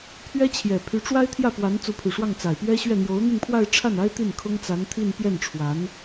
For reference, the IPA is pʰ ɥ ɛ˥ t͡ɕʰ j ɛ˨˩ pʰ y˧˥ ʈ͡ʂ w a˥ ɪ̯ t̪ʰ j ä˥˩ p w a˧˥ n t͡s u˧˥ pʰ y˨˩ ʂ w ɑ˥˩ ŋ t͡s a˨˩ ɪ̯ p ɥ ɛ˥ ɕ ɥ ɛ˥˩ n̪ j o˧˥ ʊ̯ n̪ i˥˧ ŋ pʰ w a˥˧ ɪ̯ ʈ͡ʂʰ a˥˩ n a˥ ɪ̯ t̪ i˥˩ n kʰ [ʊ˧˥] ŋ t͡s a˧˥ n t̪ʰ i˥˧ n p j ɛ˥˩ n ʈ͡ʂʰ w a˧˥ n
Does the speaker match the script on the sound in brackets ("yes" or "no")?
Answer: no